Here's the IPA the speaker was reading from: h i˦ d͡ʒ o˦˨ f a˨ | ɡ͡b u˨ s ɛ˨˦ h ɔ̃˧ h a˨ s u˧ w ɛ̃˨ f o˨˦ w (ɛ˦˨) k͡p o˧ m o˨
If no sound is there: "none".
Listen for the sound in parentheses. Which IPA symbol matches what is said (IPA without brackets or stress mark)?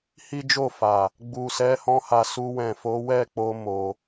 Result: ɛ˦˨